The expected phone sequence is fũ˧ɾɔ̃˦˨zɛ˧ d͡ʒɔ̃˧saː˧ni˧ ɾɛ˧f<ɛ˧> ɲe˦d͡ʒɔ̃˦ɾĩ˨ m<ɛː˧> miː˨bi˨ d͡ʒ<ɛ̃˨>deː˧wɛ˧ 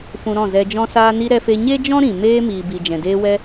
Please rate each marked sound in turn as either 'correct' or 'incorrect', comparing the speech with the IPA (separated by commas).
incorrect, incorrect, correct